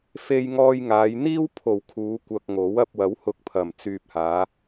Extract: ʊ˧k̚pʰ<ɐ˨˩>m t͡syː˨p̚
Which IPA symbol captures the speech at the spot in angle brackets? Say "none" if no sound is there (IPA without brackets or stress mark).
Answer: ɐ˨˩